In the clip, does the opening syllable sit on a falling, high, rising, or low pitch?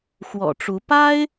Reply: low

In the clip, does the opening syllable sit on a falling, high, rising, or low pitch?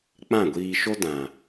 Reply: falling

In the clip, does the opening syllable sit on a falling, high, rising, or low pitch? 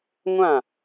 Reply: falling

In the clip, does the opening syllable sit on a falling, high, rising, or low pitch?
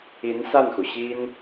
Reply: rising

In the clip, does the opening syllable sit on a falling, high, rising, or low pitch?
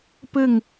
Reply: falling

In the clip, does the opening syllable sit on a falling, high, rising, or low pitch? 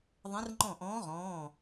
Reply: rising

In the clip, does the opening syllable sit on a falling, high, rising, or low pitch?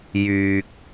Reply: low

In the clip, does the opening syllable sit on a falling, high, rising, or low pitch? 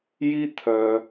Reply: high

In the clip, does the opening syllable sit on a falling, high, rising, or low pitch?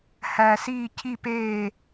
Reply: low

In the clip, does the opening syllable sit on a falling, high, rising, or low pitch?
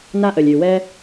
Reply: high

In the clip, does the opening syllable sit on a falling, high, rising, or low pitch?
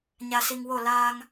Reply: low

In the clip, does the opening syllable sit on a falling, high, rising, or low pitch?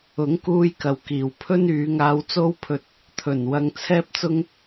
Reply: rising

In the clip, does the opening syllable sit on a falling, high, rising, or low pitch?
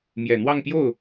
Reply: low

